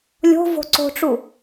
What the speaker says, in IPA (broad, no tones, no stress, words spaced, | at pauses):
lʲo̤vo̤ ǀo̤ʈ͡ʂu